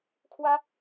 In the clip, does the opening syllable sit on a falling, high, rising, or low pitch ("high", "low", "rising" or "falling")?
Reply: high